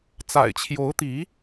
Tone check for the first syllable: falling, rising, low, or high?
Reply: low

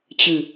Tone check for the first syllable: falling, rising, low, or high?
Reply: low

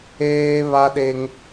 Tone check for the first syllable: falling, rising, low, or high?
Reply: high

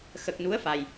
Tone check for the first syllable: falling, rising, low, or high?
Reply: low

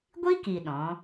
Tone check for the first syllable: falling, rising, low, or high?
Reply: high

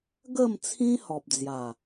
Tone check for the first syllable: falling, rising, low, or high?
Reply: falling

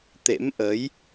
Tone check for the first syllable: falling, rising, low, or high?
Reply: rising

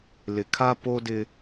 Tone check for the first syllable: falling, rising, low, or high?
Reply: low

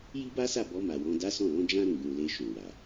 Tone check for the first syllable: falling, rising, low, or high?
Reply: high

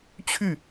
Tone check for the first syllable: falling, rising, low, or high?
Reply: falling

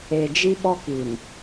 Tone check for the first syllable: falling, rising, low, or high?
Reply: low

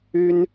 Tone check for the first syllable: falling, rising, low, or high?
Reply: high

